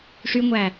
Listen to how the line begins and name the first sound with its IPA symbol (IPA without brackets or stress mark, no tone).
ʂ